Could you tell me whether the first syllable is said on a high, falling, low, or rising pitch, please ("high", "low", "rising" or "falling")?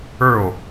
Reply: falling